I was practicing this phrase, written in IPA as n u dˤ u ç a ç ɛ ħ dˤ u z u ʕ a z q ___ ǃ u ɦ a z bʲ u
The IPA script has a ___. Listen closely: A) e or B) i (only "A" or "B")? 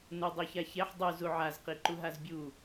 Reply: B